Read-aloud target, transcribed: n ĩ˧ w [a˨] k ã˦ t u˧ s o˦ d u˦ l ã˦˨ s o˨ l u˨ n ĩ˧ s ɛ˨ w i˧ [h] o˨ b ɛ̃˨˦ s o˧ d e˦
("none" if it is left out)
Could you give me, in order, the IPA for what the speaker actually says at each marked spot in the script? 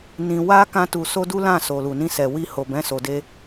a˦, h

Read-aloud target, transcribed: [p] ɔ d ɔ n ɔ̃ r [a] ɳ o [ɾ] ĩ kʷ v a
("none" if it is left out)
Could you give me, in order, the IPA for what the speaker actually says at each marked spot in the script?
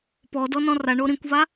p, a, ɾ

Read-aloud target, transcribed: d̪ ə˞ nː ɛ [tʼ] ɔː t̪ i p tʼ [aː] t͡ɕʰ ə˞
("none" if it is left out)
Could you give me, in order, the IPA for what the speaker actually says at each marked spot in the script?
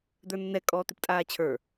kʼ, aː

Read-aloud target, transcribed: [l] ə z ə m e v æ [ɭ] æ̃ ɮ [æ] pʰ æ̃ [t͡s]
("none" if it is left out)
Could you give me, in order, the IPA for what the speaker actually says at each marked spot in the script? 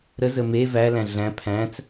ɾ, l, æ̃, t͡s

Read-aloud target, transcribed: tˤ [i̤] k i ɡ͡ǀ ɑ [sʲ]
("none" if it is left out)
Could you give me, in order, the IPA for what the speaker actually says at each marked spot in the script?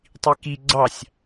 i, sʲ

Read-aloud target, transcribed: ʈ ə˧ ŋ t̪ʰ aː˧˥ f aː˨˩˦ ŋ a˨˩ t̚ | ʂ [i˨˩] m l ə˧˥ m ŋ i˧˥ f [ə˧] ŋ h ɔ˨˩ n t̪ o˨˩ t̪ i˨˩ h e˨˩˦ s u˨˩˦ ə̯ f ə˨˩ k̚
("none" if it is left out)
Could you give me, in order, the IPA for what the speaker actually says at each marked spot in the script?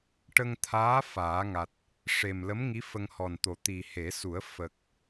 e˨˩, ə˧

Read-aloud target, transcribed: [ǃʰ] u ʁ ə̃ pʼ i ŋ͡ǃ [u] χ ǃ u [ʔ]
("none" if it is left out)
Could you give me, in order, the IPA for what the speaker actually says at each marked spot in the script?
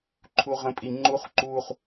ǃʰ, u, χ

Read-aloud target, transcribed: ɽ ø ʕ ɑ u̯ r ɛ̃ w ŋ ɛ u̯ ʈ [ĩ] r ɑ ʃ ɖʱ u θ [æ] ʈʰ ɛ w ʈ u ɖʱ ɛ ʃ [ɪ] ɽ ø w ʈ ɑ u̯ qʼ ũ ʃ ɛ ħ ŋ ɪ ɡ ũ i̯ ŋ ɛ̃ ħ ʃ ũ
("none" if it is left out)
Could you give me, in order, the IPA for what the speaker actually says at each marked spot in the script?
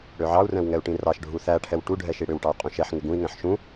ĩ, æ, i

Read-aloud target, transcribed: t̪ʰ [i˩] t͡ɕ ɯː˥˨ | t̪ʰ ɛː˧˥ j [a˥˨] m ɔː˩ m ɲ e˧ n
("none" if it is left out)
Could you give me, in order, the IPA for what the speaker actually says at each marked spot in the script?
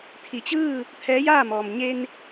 i˩, aː˥˨

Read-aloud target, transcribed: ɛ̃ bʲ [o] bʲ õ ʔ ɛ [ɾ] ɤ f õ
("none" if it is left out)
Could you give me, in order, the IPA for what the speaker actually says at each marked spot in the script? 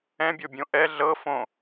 o, ɮ

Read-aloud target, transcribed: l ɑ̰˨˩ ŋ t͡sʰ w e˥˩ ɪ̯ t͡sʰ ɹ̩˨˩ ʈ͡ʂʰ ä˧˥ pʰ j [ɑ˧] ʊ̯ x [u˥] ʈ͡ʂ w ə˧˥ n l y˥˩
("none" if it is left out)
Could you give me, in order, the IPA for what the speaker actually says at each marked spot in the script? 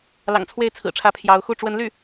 ɑ˧˥, u˥˩

